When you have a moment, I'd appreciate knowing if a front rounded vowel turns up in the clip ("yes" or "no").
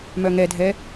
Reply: yes